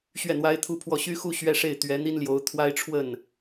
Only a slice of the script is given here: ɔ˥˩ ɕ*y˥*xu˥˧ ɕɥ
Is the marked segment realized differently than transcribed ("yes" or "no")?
no